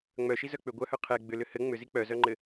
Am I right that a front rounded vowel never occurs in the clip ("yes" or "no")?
no